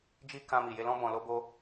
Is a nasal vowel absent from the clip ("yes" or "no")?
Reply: no